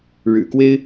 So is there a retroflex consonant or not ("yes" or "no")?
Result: yes